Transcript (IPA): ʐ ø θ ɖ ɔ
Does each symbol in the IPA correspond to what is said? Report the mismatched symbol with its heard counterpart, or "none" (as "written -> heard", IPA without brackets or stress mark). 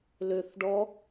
ʐ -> l